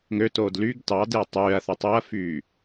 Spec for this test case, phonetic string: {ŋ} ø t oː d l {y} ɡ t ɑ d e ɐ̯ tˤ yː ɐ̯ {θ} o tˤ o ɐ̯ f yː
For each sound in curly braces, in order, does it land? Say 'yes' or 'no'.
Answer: yes, yes, yes

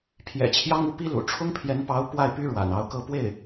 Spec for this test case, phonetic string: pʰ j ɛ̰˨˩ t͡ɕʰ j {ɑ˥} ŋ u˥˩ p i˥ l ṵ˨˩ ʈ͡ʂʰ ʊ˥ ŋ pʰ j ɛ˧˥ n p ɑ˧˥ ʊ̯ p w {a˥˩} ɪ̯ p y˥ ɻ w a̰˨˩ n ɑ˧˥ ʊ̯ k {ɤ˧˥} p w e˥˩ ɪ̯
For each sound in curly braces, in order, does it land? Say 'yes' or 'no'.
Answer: yes, yes, no

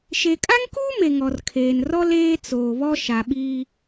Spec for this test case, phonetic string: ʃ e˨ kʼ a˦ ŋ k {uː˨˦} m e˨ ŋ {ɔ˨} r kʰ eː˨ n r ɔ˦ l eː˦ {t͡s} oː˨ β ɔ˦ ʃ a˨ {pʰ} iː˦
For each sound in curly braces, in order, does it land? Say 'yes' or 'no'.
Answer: no, yes, yes, no

